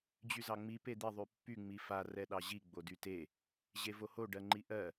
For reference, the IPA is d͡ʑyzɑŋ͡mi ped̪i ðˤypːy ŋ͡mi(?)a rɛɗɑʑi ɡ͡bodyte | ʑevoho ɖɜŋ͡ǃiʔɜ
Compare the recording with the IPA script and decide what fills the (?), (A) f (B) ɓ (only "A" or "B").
A